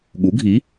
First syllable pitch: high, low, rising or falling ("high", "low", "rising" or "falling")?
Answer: rising